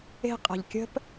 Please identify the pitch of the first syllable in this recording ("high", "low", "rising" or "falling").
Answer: high